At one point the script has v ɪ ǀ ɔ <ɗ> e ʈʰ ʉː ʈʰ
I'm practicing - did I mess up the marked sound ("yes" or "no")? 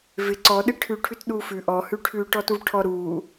no